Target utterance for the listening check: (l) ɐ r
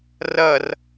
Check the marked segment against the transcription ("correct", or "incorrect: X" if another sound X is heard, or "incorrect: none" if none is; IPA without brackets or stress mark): incorrect: r